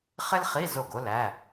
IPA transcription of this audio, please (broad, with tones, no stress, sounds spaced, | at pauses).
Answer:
χ ɪ˥ l χ i˧˥˧ z o˥˩ ɡ o˥ l æ˧˥˧